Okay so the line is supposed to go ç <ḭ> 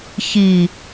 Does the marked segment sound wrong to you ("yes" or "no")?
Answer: yes